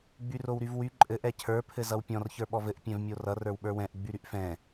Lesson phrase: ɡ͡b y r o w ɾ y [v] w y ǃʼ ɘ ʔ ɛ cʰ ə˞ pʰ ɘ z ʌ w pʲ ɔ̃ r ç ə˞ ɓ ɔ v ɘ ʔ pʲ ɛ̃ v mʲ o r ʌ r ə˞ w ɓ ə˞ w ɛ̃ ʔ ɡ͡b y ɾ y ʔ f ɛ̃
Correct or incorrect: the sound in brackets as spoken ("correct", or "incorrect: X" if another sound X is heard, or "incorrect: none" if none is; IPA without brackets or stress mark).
correct